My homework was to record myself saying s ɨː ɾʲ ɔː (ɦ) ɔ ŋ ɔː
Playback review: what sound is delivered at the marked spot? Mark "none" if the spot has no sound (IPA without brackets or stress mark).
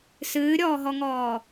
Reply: ɦ